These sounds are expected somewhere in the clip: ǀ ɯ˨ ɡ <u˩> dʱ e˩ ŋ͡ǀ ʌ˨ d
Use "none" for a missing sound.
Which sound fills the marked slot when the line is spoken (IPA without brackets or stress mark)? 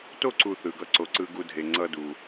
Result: u˨